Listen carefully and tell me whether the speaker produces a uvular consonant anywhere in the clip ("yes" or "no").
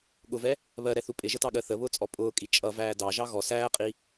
yes